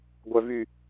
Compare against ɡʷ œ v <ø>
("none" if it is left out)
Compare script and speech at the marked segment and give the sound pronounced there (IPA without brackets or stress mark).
y